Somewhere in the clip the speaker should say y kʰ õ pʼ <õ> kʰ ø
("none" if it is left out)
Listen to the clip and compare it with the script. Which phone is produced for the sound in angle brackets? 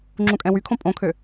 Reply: õ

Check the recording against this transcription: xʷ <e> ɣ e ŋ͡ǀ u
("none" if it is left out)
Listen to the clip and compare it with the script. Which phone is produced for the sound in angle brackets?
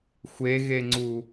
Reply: e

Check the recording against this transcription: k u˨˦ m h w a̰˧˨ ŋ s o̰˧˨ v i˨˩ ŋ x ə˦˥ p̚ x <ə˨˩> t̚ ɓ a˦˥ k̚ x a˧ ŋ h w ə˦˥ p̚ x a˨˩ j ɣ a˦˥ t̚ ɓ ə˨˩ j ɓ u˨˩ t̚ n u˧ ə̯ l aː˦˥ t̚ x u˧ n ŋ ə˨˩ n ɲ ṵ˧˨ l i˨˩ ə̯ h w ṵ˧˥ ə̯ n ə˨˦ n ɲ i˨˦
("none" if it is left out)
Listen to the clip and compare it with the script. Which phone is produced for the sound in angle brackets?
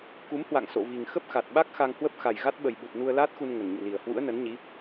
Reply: a˨˩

